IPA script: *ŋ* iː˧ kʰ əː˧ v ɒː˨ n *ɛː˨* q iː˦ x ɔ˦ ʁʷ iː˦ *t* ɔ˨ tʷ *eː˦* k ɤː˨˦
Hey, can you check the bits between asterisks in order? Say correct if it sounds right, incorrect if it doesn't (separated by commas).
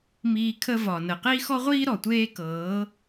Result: incorrect, incorrect, incorrect, correct